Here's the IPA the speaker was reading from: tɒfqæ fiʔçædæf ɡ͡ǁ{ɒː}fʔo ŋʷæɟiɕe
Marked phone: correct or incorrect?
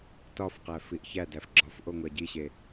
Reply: incorrect